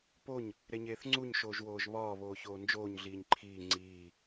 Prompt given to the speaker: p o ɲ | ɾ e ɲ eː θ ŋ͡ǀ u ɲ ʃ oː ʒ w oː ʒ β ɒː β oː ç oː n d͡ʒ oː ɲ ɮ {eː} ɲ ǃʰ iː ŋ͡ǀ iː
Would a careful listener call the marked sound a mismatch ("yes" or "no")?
yes